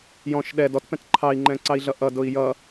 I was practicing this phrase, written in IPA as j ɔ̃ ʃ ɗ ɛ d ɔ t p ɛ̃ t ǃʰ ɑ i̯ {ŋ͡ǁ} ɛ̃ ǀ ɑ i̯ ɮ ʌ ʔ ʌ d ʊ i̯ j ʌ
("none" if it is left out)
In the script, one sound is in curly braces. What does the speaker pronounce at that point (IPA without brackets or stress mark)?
ŋ͡ǃ